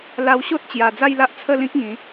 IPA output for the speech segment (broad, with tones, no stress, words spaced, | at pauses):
la˧wɕo˦t̚t͡ɕja˨˩ d͡za˥˧jla˦ʔt͡sʰə˥˧lĩ˦k̚ ŋĩ˨˦